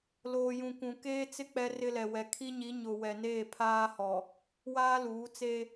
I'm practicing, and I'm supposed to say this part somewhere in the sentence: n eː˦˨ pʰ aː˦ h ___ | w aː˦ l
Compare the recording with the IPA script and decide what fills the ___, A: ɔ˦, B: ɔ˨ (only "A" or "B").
B